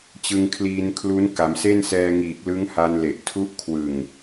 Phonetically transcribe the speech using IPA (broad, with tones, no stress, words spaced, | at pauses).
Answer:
t͡ɕɯ˧ŋkʰliː˧nkʰlu˦˥n ka˩˦mse˥˩nsɛː˧ŋiː˨˩k̚ lɯ˦˥ŋha˧nle˨˩ʔ tʰu˦˥ʔkʰwɯ˨˩ŋ